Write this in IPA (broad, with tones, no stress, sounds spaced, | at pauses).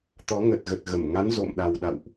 t̪ ɔ˨˦ ŋ ə˨˩ t̚ ɣ ə˨˩ t̚ ɣ ə˧˩ m ŋ a˨˦ n z o̰˧˨ m ɗ a˨˩ w ɗ a̰˧˨ w ʔ